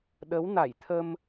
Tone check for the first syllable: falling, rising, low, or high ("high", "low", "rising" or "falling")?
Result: rising